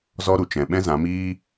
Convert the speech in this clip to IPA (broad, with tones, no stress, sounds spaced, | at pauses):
z ɔ˦ ɾ u˨ t͡ʃ ɛ̃˨ ɓ ɛ̃˦ z ã˨˦ m iː˦